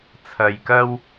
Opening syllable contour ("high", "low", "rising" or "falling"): low